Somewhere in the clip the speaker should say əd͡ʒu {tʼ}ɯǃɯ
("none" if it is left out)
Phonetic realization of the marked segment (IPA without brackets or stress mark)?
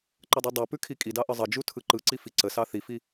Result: tʰ